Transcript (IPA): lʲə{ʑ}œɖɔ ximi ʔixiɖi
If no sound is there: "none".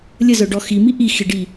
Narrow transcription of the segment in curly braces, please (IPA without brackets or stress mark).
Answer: z